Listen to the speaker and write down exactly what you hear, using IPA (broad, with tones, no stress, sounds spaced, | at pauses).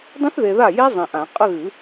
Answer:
dˤ ĩ˦˥ θ ð e˨ ð a˥˩ j e˦˥ zˤ ĩ˨ ʔ ã˨˩˦ qʼ ə˥˧ ɣ ɨ˨˩˦